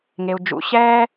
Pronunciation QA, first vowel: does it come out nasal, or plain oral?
oral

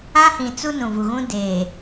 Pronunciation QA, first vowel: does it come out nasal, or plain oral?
nasal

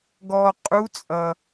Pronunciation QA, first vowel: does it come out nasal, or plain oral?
oral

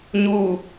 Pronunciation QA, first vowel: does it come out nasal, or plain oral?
oral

